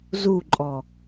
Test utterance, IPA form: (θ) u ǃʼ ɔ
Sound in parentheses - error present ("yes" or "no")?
yes